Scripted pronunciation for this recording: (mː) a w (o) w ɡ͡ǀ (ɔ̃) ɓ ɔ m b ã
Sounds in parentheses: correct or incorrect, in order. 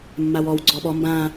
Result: correct, incorrect, incorrect

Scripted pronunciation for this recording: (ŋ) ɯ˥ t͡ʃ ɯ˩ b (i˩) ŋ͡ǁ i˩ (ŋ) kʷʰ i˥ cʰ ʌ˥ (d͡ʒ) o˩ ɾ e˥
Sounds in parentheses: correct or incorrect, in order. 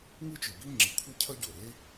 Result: correct, incorrect, incorrect, incorrect

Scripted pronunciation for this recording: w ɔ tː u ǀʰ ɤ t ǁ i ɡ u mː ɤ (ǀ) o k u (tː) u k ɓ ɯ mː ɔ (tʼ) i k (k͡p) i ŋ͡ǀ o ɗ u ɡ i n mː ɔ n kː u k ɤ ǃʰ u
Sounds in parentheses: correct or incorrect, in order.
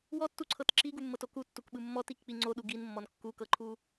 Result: incorrect, correct, incorrect, correct

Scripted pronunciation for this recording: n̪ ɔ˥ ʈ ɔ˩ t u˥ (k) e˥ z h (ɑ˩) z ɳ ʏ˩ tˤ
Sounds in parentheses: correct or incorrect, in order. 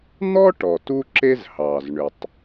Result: incorrect, correct

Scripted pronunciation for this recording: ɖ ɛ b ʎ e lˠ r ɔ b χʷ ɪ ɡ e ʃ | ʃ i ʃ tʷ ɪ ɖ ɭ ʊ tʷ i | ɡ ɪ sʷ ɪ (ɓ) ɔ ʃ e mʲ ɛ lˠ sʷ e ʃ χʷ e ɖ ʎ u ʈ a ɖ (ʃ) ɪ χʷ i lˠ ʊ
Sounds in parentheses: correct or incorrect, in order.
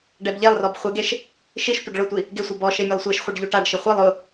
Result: incorrect, correct

